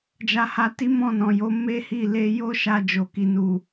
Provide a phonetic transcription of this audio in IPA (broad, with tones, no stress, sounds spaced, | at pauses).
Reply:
d͡ʒ a˧ h a˧ t i˦ m ɔ̃˦˨ n ɔ̃˨ j o˨˦ m e˦ h i˦˨ l e˧ j o˦ ʃ a˧ d͡ʒ o˨ k i˨ n u˨